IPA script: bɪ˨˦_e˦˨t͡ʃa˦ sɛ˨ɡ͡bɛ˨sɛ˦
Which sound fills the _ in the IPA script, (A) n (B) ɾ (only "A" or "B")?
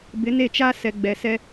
A